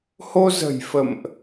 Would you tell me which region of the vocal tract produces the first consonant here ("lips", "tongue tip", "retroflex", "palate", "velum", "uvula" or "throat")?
throat